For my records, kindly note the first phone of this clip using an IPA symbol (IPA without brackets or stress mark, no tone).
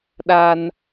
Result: ɗ